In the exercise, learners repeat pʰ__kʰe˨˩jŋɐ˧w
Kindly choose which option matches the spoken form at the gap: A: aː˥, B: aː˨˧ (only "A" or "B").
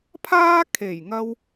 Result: A